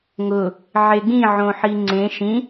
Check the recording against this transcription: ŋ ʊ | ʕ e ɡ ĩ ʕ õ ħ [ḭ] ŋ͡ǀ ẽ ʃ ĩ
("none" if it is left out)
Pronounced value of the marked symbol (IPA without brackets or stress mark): i